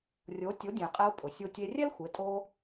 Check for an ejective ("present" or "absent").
present